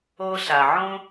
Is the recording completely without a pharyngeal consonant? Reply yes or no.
no